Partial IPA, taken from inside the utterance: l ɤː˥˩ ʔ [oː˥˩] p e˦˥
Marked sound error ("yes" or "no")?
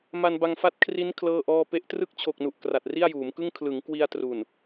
yes